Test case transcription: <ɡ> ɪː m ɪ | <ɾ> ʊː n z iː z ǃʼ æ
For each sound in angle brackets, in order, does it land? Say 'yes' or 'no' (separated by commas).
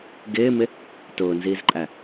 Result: yes, no